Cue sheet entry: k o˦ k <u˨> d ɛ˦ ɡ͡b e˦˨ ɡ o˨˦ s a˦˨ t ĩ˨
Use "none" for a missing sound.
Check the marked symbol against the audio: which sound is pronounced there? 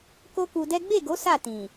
u˧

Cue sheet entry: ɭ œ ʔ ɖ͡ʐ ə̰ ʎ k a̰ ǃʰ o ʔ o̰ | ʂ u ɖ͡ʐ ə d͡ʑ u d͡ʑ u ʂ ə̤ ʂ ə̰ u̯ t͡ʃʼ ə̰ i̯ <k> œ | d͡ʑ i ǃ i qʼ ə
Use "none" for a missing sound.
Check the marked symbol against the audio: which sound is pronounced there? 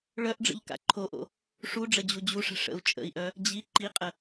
ʔ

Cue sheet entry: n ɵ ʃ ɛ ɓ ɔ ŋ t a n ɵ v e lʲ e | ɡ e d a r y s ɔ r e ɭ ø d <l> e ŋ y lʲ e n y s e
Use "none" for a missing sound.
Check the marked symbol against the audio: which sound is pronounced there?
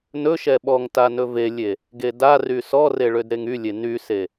ɾ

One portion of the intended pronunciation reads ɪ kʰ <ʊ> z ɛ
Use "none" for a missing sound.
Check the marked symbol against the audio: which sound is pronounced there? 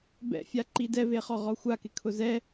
ʊ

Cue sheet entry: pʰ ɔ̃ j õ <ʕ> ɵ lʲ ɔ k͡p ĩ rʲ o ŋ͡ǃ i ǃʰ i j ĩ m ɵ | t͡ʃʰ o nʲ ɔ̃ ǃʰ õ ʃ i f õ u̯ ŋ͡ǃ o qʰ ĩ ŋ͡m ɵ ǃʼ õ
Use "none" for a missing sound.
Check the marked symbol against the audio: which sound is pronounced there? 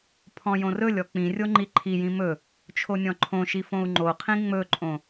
r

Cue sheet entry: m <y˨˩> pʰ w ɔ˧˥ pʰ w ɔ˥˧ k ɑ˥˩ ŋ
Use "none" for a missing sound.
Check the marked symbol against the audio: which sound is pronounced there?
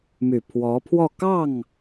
y˨˩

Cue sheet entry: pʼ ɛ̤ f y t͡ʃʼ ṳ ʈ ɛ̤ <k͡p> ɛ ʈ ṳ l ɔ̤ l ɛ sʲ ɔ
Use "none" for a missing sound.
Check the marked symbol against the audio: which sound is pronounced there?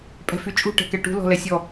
k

